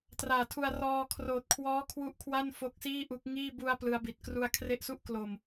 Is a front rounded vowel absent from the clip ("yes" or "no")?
yes